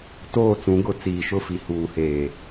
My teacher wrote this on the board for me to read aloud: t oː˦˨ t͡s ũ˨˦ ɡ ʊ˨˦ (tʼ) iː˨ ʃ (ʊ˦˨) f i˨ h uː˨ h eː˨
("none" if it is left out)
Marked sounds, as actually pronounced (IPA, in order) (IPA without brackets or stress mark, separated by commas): t͡s, ʊ˦˨